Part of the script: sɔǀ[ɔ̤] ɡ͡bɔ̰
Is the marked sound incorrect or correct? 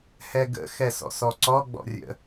incorrect